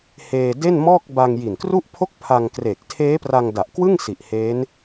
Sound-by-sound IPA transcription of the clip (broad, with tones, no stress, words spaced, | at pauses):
heː˧ de˥˩nmɔː˥˩k̚ ba˧ŋji˨˩nkru˥˩ʔpʰo˥˩k̚ pʰa˧ŋ kreː˨˩k̚tʰeː˦˥pra˧ŋ da˨˩ʔkwɯ˥˩ŋsi˨˩ʔ he˦˥n